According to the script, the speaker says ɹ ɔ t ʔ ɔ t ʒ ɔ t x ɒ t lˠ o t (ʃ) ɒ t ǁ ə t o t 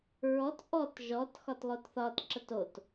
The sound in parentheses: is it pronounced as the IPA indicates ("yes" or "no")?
no